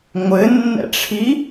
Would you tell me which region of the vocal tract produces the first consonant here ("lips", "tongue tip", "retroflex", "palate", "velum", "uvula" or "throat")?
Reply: velum